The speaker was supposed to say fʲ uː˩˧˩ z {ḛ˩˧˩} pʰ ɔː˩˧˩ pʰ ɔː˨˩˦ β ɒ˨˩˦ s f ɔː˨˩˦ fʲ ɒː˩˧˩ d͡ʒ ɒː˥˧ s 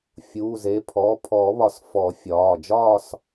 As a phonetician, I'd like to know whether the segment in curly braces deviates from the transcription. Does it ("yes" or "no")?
yes